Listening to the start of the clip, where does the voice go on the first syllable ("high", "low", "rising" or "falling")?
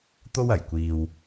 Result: high